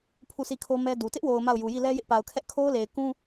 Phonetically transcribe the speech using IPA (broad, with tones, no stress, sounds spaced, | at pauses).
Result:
pʰ u˦˨ s i˦˨ kʰ o˦ m ɛ˦ d u˨ t ɪ˦ ʔ w o˨ ʊ̯ m a˦˨ ʊ̯ j u˨ j i˦˨ l ɛ˦ j ɪ˦ ʔ p a˨ ʊ̯ kʰ ɛ˦ ʔ kʰ o˦ ʊ̯ l e˨ ɪ̯ k ũ˦